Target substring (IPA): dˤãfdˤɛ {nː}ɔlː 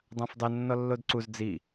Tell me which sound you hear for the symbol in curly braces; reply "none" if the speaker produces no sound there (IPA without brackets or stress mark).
nː